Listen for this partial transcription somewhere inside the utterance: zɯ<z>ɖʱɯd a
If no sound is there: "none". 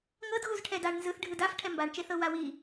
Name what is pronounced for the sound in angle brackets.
θ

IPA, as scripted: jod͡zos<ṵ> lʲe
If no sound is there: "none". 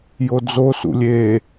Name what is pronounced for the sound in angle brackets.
ṵ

